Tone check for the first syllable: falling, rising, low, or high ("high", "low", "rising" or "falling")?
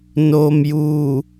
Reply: low